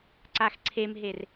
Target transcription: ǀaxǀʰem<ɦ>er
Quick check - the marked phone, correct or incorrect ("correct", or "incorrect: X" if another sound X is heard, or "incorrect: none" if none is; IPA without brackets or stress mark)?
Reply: correct